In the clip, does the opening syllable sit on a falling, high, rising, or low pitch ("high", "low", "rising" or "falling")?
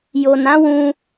low